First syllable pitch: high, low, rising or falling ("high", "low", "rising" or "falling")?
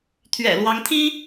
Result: low